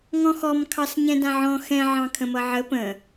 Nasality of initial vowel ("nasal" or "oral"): nasal